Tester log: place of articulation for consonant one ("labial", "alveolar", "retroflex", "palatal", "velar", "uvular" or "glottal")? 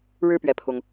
retroflex